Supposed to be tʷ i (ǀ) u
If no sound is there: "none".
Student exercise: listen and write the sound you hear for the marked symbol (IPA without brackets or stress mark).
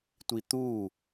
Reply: t̪